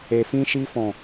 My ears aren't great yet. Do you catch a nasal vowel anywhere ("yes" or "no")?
yes